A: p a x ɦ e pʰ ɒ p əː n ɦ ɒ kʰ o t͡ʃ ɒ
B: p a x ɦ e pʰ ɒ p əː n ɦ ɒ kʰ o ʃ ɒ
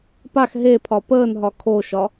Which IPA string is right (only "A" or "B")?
B